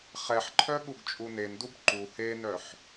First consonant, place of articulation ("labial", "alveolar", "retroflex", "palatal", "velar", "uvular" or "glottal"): uvular